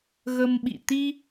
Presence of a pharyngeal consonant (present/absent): absent